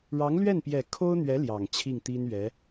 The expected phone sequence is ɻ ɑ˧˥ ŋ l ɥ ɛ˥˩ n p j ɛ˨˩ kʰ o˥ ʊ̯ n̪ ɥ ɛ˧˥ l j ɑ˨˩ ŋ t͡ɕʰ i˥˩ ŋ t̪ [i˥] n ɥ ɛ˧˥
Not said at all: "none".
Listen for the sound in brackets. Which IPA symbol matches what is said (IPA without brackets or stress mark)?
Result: i˥